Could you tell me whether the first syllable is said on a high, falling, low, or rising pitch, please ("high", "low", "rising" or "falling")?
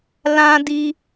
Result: high